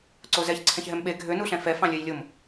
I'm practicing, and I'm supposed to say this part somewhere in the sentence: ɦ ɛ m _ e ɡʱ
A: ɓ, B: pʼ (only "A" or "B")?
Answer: A